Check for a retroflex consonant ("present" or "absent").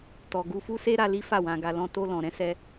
absent